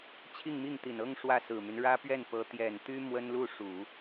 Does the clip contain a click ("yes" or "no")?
no